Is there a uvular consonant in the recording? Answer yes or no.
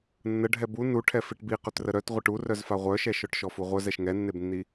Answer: yes